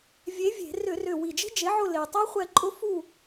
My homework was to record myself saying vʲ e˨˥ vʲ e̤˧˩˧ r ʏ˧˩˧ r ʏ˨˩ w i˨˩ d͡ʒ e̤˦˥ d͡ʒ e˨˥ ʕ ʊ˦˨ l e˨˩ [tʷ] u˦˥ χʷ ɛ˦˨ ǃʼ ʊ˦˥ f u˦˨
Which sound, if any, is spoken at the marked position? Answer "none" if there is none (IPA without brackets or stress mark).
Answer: tˤ